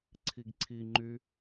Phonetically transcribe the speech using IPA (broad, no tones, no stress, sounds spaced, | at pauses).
ǀʰ i ɡ ǀʰ i ŋ͡ǃ y